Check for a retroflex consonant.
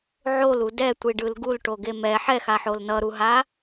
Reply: present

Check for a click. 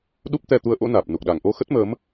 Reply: absent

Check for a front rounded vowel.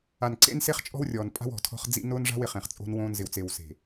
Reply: absent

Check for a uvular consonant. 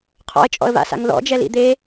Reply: present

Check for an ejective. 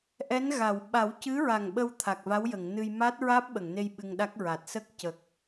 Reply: absent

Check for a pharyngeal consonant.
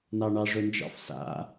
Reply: absent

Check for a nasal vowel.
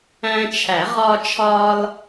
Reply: present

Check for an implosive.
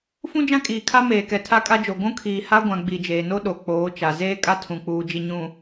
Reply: present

